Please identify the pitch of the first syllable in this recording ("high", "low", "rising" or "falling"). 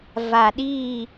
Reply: low